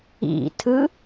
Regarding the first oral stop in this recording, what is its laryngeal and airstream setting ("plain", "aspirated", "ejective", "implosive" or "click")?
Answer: aspirated